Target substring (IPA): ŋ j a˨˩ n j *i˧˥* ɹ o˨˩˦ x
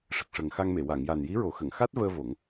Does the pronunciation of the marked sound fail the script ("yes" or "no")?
no